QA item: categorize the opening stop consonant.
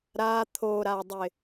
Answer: aspirated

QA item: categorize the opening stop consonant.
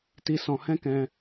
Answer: plain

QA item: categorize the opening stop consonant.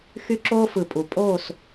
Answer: click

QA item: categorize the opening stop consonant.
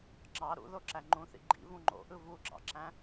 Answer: click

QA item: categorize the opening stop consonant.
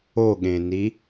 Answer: implosive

